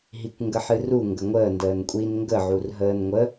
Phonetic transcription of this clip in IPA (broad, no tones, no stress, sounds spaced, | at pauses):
ɦ i kʷ ŋ ɡ ə ħ ɨ r u ŋ ɡ ə ŋʷ əː n d əː n kʷʼ i n ŋ ɡ ə ʕ u r ɦ əː n ŋʷ ə